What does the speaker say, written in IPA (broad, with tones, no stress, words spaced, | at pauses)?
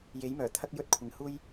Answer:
je˨˥jmœː˨˩t̪ʰɐ˥k̚ jɵ˥t̚kʷʰɪ˨ŋ huː˥j